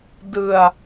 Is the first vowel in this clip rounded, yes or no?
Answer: no